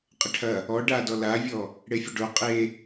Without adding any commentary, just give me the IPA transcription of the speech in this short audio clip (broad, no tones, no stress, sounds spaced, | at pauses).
qʼ ə ʈʰ ɐ | ɔ ɖ a d ɔ l a vʲ ɔ | ɽ e fʲ ə ɖ o qʼ e